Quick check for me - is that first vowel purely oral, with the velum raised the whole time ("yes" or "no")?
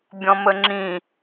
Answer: no